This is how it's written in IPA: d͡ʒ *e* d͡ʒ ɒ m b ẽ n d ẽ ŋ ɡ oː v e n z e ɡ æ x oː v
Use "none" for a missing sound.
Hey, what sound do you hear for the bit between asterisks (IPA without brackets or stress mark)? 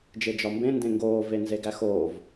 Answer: e